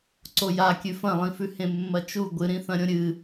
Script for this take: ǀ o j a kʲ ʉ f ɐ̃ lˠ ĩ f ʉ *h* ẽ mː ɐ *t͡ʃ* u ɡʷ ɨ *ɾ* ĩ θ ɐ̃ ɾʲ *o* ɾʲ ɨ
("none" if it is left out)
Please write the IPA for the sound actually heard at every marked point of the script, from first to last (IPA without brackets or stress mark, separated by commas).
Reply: h, t͡ʃ, ɾ, õ